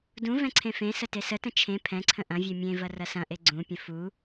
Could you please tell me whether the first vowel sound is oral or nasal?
nasal